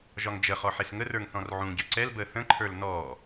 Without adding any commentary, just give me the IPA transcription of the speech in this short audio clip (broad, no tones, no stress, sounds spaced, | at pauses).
ʒ ɒ ŋ d͡ʒ ə χ ɔ ħ e s ŋ ə r ə˞ ŋ θ ɔ̃ r ʕ ũ ɟ ø ǀ ɛ l b əː θ ə̃ ǃʰ ə˞ l n ɔ